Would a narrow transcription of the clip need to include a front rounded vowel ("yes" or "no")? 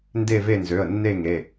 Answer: yes